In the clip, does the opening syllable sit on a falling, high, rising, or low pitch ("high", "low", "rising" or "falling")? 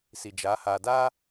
low